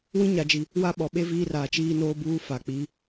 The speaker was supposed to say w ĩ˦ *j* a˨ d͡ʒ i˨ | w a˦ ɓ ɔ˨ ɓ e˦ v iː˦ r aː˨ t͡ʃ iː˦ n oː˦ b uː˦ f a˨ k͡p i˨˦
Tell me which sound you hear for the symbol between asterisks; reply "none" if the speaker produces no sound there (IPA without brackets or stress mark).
ɲ